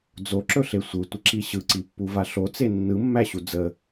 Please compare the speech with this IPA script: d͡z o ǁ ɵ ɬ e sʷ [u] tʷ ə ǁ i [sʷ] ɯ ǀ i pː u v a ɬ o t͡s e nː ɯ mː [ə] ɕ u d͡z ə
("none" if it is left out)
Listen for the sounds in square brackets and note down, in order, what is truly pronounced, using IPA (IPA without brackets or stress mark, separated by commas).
ɯ, ɕ, æ